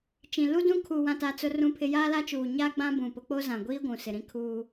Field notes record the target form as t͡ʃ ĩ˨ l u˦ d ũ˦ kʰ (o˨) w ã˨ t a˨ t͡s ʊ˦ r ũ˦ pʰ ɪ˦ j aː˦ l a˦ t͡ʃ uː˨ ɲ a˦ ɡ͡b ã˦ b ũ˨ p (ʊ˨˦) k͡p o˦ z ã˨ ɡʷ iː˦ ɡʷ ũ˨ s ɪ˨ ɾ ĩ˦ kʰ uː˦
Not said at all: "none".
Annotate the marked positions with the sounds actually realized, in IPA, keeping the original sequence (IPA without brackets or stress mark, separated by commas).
u˨, ʊ˨˦